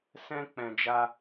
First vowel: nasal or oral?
nasal